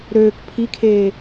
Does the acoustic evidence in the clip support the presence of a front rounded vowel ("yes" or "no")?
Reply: yes